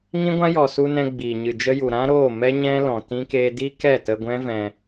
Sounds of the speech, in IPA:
ŋ ĩ˦ ɡʷ ã˦ j ɔ˨ s u˧ n ɛ̃˧ ɡ͡b iː˨ ɲ ɨ˨ d͡ʒ ə˦ j u˨ ɾ ã˦ ɾ oː˦˨ m ɛ˦ ɲ ɛ̃˦ l ɔ̃˨ t ĩ˦ k eː˦ d i˦ k ɛ˦˨ t ə˧ ɡʷ ɛ̃˦ v ɛ̃˧

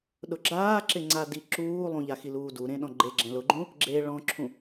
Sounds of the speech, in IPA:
ɗ ʊ ɡ͡ǁ aː ǁ ɪ ŋ͡ǀ a d i ǁ uː lˠ ũ ʎ a x i l uː d u ɾ ẽ ɗ ɔ̃ ɡ͡ǃ e ɡ͡ǁ ɛ̃ l ʊ ɡ͡ǃ ũ | ɡ͡ǁ e ɭ ɔ̃ ǁʰ ũ

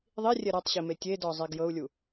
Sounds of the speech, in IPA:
ðˤ i rʲ ɛ ɾ a tˤ ɕ i m e tʲ e d ɔ zˤ e ɡ j ɤ u̯ lʲ u

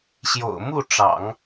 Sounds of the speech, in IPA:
ɕ j o̰˨˩ ʊ̯ m u˥˩ ʈ͡ʂ ɑ̰˨˩˦ ŋ

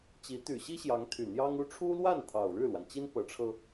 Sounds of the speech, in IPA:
t͡ɕ i˧˥ t̪ y˨˩ ɕ i˥ ɕ j ɑ˧˥ ŋ t̪ʰ y˨˩ n̪ j ɑ˥ ŋ u˥ ʈ͡ʂʰ u˥ l w a˥˩ n t̪ʰ ɑ˨˩ ʊ̯ ɻ ɻ̩˥˩ l w a˩ n t͡ɕ i˥ n p ɤ˧˥ ʈ͡ʂʰ ɤ˧

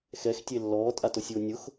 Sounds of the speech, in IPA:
x ɛ x tʲ e lː ɔː tʼ a t ʊ sʲ ʊː nʲ ʊ x

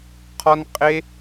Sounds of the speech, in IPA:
qʰ ɒ˦ n qʼ e˦

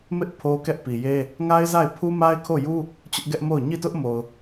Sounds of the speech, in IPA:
m ɪ˦ ʔ pʰ o˦ k ɛ˦ ʔ p i˨ j e˦ | ŋ a˦ ɪ̯ z a˦˨ ɪ̯ pʰ u˦ m a˦ ɪ̯ kʰ o˦˨ j u˦ | t͡ɕ ʊ˦ ʔ ɡ ɛ˦ ʔ m o˦˨ ʊ̯ ɲ i˦˨ t ʊ˦ ʔ m o˨ ʊ̯

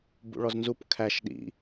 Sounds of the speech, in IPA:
b ṵ ɭ ɔ z n z u p kʰ æ ʃ ɗ ḭ

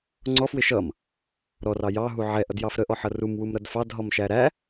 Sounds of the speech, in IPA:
ŋ͡ǀ ɔ f w ɪ ʃ ʌ m | ɾ ɔ r ɑ j ɑ ɦ u ʕ ɛ ʔ ʌ d j ɑ f ɾ ə ʔ ɔ ħ ʌ r u m w u m ɾ ʌ d f ɑ d ɦ ɔ m ʃ æ ɾ æ

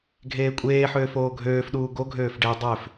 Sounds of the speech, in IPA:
ɡʱ eː kʷʼ eː ħ øː f oː ɡʱ øː f ɗ uː ɡ o ɡʱ øː f ɖ e dˤ ø f

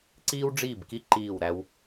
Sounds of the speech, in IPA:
ǀ iː˥ w ɖ͡ʐ iː˥˩ b k i˥ ǃ iː˥˩ w ɾ æ˥ w

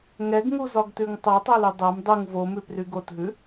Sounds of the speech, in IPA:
ŋ ɛ ɡ ŋ u z ɒ ɡ t ʉ ŋ tˤ ɜ tˤ o l y dˤ ɜ m dˤ u ŋ v o m ʉ p r y ɡ o t ɦ ʉ

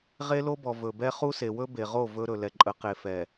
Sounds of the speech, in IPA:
ʁ e˦ l o˦ b ɔ˨ v ɵ˨ b ɛ˦ χ u˦ s e˨ w ɵ˦ b e˨ ʁ o˦˨ v ɵ˦ ɾ ɵ˨ l ɛ˨ ǃʼ ə˨˦ q e˨ f ɛ˨

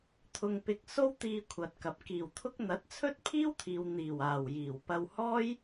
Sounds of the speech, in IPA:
t̪ʰ ʊ˧ ŋ p ɪ˧ k̚ s o˥ w t̪ iː˧ kʷʰ ɐ˨ t̚ k ɐ˨ p̚ k iː˨˩ w t̪ʰ ʊ˥ k̚ n̪ ɐ˨˥ t̚ t͡sʰ ɵ˥ t̚ pʰ iː˥ w t̪ʰ iː˨ w n̪ iː˨˩ w aː˨˩ w j iː˨˩ w p ɐ˧ w h ɔː˥ j

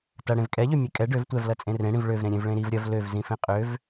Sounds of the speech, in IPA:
t ɐ ɽ ẽ v kʼ ɛ ʎ ø mʲ e kʼ ɛ ɖ ø v tʷ ɛ v l ɐ t͡sʼ ẽ r ẽ ɽ ĩ v ɭ ø v ɾ ẽ ɾʲ ẽ v ɭ ẽ ɾ i v ɾʲ ɐ v l ø v z ĩ f ẽ qʼ ø v

